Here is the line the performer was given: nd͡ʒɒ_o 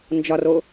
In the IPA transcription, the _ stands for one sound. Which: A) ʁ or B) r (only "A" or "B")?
B